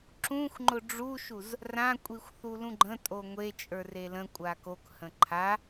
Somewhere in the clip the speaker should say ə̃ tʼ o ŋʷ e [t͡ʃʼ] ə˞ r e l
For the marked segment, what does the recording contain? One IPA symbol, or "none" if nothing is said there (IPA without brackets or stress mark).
t͡ʃʼ